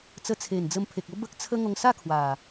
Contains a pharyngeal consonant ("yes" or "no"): no